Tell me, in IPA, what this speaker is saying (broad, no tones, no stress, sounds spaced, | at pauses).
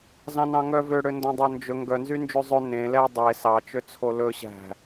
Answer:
z ɑ̃ n ɑ̃ ŋ œ v ø ɽ ø n d ɔ̃ dˤ o n d͡ʒ ɵ ŋ ɡ œ n z y n d͡ʒ ʉ zˤ ø n ẽ l ɛ dˤ e s ɑ t͡ʃ ø t͡sʰ o l ɵ ɕ æ̤